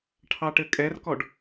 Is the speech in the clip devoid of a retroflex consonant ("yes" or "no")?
no